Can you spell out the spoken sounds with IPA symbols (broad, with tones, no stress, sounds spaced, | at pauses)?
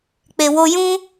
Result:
k͡p e˧ w o˦ j ũ˦